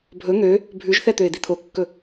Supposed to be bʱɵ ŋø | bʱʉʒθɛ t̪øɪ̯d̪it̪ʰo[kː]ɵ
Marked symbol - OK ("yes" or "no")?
yes